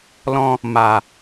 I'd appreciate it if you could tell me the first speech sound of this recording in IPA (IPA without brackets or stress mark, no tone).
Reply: l